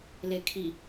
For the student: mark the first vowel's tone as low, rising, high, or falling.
low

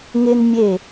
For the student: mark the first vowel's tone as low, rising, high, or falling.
high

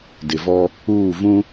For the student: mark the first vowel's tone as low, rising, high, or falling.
low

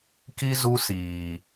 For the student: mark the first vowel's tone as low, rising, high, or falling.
high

